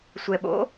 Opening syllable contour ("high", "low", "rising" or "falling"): low